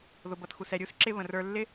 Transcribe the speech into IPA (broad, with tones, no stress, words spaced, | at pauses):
ðʊ˨bʌ˨txu˨sɛ˨ ɾʲu˦sǁɪ˧ βə̃˨rə˞˧ lːɪ˦